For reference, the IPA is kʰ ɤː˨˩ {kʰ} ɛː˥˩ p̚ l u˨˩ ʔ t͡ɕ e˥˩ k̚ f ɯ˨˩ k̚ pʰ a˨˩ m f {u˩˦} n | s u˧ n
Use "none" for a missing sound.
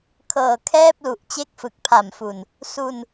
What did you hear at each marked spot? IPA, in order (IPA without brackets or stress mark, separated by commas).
kʰ, u˨˩